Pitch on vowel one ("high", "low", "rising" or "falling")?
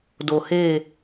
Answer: low